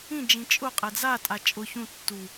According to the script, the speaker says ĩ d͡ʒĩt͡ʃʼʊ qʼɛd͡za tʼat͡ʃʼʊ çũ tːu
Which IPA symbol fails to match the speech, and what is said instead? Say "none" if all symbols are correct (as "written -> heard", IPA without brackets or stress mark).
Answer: none